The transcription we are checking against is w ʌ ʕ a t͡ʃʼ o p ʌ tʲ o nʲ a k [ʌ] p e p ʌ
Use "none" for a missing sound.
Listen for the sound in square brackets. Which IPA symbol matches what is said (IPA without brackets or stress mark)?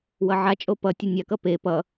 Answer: ʌ